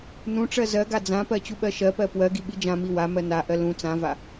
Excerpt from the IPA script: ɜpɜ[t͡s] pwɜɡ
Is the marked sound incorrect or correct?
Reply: incorrect